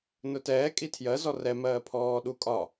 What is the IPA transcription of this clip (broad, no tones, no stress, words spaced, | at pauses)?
nʊtɛː kʼitʰjɜ zɔrɛ mɜːpʰɔː ɗukʼɒ